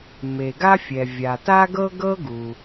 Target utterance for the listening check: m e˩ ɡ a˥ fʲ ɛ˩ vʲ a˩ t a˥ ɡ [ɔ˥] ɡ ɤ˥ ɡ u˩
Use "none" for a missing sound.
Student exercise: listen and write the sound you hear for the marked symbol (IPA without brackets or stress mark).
ɤ˥